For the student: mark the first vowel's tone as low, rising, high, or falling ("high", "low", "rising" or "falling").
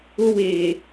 high